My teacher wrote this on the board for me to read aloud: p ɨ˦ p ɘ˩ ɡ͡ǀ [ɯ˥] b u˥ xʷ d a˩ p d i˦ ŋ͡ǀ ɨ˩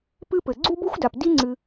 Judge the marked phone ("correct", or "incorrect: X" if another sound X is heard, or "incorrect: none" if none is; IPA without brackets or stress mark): incorrect: u˥